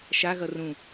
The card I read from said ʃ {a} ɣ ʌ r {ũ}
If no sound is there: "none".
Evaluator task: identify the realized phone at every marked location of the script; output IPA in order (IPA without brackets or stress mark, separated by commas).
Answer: a, ũ